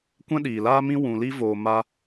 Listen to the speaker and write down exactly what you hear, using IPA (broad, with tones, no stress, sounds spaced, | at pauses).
kʷ ɛ̃˦ ɗ iː˨ l aː˦ m ĩ˦ w ũ˨ l i˧ v oː˨ m a˧